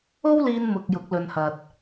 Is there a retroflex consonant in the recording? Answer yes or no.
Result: no